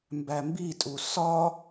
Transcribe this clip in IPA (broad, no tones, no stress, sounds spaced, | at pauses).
m b æ m b i tʼ u s ɒ